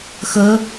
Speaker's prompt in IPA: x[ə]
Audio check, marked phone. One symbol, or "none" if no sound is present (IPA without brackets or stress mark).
ə